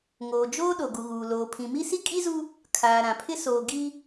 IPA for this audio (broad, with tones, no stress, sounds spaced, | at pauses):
ŋ oː˨ d͡ʒ oː˦ ɗ o˨ ɡ u˨ ɣ uː˨ l oː˨ pʰ ĩ˨ m i˦ s i˦ kʼ i˦ z u˦ | kʰ aː˨ ɾ ã˨ pʰ ɪ˦ s oː˨ ɡ i˦